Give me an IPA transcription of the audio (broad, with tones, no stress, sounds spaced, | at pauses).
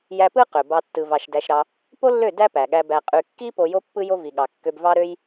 j æ˧ p ɯ˦ q ø˨ b ɑ˧ tː ɯ˨ v ɑ˨ ʃ d æ˧ ʃ ɾ ɑ˧ | p o˦ lː ø˦˨ d æ˦ p æ˨ ɠ æ˧ b æ˨ qʼ y˨ kː i˦ p o˧ j o˦ pː ɯ˦ j o˦ v i˨ ɠ ɑ˨ kː ø˧ b v ɑ˦ ɾ ø˦ j